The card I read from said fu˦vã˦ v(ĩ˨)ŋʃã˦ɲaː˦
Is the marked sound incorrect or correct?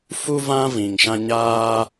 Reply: correct